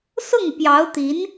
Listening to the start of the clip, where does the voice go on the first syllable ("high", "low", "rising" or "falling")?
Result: falling